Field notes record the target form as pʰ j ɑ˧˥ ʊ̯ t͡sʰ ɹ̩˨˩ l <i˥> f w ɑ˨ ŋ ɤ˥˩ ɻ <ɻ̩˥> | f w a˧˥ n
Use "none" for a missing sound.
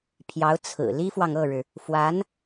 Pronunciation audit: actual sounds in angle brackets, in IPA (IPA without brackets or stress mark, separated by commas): i˥, ɻ̩˩